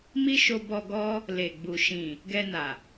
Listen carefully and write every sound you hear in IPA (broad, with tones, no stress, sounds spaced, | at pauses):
m i˦ ʃ o˧ b ɔ˧ ɡ ɔ˦ | l e˨ ɡ͡b u˨ ʃ ĩ˨ | ɡ ɛ˧ n a˨